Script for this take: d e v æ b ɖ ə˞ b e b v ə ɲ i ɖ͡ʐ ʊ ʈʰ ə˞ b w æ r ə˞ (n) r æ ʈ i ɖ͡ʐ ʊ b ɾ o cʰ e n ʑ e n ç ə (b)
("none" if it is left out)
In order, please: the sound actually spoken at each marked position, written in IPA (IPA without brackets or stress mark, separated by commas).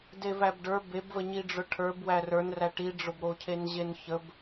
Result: n, b